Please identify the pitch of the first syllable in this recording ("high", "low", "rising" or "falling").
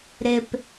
low